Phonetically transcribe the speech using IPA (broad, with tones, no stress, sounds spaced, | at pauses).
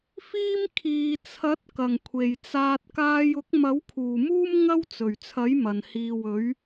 f iː˥ m kʰ iː˨ t͡sʰ ɐ˨˥ t̚ k ɐ˨˩ ŋ kʷʰ e˨˩ j t͡s aː˧ t̚ k aː˧ j ʊ˨˥ k̚ m ɐ˨˥ w kʰ uː˨˩ m uː˥ m ŋ ɐ˥ w t͡s ɵ˨˩ ɥ t͡sʰ ɐ˨˥ j m ɐ˨˩ n h iː˨ w ɵ˨˥ ɥ